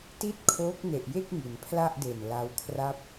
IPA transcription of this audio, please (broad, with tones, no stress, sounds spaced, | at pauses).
t i˥˩ t̚ kʰ oː˦˥ k̚ n e˨˩ ʔ j e˥˩ k̚ ŋ i˩˦ n pʰ l a˥˩ ʔ d e˨˩ n l a˦˥ w kʰ r a˥˩ p̚